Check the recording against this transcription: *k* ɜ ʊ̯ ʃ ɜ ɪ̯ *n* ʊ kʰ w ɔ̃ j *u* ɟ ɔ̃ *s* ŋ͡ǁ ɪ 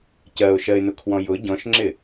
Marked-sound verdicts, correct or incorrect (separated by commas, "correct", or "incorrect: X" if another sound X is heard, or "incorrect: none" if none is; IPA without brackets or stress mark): incorrect: c, correct, incorrect: ʊ, incorrect: ʃ